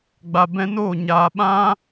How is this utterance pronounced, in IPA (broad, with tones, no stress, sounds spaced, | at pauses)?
ɡ͡b a˨ b ɛ̃˧ n oː˦˨ ɲ aː˨ ɓ ã˦